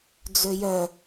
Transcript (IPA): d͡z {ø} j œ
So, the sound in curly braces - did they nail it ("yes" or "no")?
yes